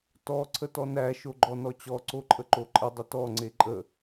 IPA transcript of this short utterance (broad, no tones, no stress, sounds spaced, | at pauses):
t ɔ ǀʰ ə t ɔ n æ ʃ o ɡ͡ǃ ɔ n ɔ t͡ɕ ɔ ǀ o ǃʼ ə ǃ o ǃʼ ə dˤ ə t ɔ ŋ͡ǀ e ǃʼ ə